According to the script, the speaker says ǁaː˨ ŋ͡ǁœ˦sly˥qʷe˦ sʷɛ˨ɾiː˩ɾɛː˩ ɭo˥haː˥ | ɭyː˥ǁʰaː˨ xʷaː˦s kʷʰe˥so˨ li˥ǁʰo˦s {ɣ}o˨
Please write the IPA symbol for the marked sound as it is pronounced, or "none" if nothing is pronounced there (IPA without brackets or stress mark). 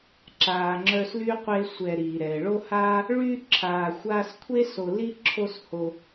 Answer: h